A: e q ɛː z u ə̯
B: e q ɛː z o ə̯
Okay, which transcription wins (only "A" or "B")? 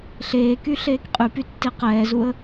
A